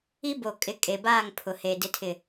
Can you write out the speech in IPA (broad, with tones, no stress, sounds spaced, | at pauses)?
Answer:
i˦ b o˨ kʼ ɪ˨ kʼ e˨ b aː˦˨ ŋ pʰ ʊ˨ h e˨ d ɪ˨ tʰ ɪ˨